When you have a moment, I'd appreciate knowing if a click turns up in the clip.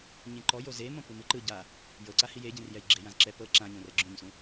yes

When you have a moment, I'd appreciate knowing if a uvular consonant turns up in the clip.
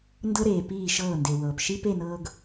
no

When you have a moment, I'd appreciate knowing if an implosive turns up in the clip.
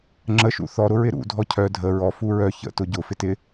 no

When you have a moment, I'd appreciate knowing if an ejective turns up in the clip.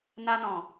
no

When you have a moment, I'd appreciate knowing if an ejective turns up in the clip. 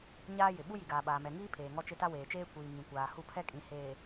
yes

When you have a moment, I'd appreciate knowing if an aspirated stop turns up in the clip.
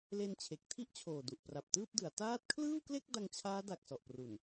yes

